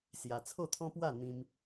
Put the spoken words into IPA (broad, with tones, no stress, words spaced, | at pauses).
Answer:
sja˧ t͡sʰo˥˧t̪ʰɔ̃˦pwa˥˧ n̪ĩ˦m